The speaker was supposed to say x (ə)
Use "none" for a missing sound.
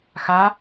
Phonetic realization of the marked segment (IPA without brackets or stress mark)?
a